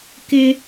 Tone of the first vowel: high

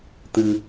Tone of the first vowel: low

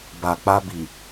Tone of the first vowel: low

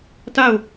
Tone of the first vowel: falling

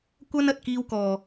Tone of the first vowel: high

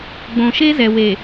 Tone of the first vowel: low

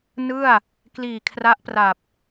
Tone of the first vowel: falling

